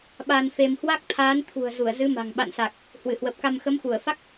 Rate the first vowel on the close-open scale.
open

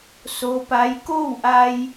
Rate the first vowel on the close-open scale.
mid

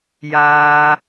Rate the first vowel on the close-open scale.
open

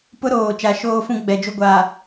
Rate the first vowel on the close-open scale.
close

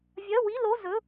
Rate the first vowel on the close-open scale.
open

